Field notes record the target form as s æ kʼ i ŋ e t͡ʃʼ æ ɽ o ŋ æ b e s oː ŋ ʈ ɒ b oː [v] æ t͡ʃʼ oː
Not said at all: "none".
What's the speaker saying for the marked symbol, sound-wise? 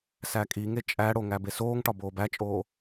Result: b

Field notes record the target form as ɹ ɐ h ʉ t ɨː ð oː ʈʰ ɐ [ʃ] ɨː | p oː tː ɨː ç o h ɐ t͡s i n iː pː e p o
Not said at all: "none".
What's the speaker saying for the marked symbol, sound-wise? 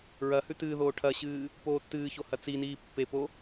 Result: ɕ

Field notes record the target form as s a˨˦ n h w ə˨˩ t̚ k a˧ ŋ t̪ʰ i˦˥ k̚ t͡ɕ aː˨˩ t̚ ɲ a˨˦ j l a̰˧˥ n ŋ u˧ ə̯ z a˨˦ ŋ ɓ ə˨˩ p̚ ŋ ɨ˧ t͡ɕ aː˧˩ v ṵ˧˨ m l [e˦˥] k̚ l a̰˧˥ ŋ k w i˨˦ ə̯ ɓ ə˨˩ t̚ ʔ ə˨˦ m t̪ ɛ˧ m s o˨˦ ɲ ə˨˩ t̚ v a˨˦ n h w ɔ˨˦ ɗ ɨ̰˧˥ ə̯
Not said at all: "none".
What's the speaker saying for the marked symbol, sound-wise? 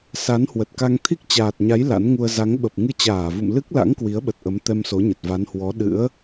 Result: ɨ˦˥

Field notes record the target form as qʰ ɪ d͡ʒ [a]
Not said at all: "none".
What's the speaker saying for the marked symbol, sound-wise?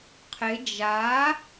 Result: a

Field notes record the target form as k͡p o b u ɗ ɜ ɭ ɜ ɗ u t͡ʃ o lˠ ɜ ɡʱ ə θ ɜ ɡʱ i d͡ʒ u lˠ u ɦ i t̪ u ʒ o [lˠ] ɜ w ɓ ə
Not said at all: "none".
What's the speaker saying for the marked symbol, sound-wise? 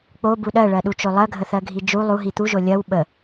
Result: lʲ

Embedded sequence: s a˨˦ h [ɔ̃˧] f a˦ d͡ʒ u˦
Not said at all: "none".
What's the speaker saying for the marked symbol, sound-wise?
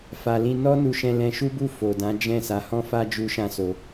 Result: ɔ̃˦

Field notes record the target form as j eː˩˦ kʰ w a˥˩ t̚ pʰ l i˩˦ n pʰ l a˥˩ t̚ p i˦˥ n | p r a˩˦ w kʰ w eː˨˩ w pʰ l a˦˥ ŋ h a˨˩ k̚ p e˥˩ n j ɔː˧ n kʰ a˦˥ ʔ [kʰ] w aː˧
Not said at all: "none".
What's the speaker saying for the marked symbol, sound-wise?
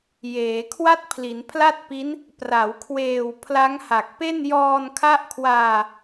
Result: kʰ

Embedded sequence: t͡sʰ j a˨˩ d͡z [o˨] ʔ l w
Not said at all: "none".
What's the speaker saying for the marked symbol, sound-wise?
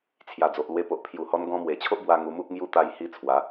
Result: o˨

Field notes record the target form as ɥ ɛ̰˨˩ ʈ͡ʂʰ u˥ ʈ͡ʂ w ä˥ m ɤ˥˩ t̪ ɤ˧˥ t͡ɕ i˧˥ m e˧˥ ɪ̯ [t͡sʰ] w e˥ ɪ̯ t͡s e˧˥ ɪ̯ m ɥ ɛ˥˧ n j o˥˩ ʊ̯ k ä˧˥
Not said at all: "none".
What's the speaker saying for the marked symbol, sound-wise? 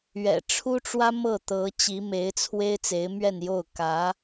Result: t͡sʰ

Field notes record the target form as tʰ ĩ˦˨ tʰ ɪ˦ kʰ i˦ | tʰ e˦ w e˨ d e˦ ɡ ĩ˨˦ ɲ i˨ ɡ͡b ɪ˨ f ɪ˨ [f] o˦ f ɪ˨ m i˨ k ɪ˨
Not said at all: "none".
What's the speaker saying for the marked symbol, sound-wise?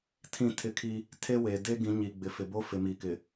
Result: b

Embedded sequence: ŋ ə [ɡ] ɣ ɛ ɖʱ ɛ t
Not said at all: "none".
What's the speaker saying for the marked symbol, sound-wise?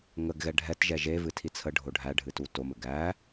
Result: ɡ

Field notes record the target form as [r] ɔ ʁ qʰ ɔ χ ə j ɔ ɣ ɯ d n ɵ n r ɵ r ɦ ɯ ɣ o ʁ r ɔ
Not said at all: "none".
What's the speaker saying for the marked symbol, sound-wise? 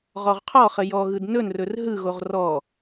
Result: ʁ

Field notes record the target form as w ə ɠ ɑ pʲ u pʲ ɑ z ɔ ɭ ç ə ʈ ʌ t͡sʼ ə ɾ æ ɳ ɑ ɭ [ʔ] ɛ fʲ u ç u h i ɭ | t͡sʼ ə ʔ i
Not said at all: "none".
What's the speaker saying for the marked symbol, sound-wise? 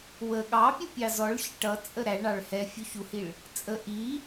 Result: h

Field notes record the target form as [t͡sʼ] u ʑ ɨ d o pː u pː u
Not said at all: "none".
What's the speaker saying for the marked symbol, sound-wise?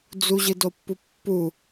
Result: d͡z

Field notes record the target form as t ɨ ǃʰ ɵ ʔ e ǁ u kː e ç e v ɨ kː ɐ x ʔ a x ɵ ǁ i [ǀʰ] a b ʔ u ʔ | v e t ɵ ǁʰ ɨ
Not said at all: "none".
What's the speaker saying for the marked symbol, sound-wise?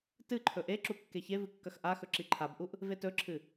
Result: ǃʰ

